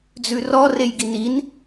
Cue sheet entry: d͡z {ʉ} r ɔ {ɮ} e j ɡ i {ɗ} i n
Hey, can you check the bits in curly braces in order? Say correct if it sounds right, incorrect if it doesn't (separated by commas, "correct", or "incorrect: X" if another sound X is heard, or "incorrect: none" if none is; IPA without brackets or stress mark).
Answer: correct, incorrect: r, incorrect: n